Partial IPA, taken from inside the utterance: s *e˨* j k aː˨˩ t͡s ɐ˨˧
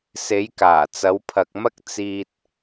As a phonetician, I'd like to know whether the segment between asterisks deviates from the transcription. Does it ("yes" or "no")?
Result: yes